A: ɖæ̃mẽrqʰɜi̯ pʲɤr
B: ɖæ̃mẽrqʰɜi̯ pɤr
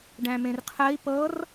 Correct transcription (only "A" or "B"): B